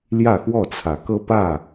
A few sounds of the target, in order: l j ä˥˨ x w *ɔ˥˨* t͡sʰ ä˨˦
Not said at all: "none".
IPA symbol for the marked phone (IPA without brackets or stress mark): ɔ˥˨